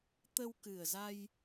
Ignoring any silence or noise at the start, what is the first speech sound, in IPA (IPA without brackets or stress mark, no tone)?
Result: t̪